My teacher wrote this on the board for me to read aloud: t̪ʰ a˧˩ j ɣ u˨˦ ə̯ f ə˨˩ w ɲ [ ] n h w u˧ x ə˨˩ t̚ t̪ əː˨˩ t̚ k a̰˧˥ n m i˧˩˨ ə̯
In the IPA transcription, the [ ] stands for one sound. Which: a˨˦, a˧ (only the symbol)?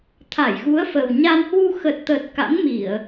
a˧